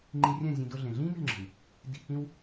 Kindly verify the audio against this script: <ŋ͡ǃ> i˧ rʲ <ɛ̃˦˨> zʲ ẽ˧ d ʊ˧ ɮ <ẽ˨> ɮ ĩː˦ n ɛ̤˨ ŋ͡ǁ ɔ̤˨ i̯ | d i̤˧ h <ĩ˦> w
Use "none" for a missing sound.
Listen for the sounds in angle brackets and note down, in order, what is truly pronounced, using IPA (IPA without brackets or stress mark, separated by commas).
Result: ŋ͡ǃ, ɛ̃˦˨, ẽ˨, ĩ˦